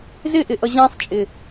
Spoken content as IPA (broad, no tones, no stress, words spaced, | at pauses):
zɪʔɪʔʌ ʑɛ̃sˤt͡ʃʼɪ